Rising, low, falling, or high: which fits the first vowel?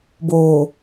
low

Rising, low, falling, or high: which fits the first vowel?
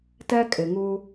high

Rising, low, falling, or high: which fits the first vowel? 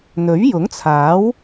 rising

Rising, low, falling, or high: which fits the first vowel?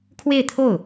falling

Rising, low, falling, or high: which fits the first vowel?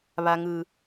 low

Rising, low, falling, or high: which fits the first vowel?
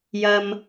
high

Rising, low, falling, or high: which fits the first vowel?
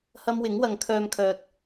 high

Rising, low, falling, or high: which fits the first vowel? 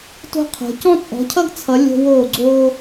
high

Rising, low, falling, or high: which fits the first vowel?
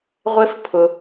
high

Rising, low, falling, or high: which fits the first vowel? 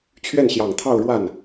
falling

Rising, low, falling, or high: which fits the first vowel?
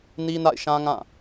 high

